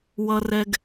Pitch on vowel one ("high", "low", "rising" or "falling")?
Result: high